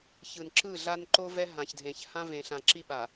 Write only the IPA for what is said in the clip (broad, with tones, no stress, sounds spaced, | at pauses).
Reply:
ç ɯ˨ n ǁ ɯ˦˨ ɮ a˦ n ǃ o˦ v ɛ˦ ɦ ã˨ ç dʱ ẽ˨ ç h ã˦ v ẽ˨ ɬ ã˨ ǁ i˦ ɓ a˨